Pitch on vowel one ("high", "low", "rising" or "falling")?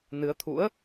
rising